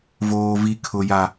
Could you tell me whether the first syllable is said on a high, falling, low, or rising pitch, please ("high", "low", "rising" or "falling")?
high